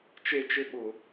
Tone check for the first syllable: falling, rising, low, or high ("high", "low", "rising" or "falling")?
high